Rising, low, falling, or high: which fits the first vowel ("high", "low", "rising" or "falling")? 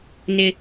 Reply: low